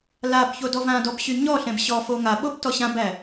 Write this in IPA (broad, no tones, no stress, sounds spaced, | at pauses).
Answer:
l a b ç o d ɔ v ã d ɔ b ɕ y ɲ ɔ ɬ ɛ̃ b ɕ ɔ f o ŋ a ɓ o b t ɔ ɕ ã b æ